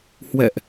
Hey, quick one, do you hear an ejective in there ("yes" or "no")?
no